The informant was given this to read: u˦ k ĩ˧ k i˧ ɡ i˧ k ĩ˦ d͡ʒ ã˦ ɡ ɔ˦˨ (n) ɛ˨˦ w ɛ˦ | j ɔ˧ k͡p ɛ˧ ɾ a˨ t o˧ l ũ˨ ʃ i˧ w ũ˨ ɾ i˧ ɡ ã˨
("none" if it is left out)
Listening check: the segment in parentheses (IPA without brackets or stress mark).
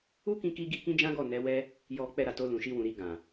n